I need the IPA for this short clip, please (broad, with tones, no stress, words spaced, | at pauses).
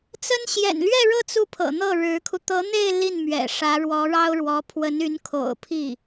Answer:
t͡sə˥n ɕjɛ̰˨˩nlɥɛ˥˧ɻɤ˥˧ t͡su˥˩pʰɤ̰˨˩ n̪ɤ˥˩ɻɻ̩˧˥kʰu˧ t̪ɤ˧˥n̪e˥˧ɪ̯ li˥˩nmɥɛ̰˨˩ ʂä˧˥ɻwɔ˧˥ɻɑ˥ʊ̯ɻwɔ˧˥ pʰwə˧˥ny˧˥n kʰo̰˨˩ʊ̯ pʰi˥˩